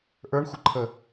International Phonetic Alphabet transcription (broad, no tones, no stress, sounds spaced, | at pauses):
ʔ ə˞ ɳ xʷ ə ǃʰ ə